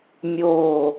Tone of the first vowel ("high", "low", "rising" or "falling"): low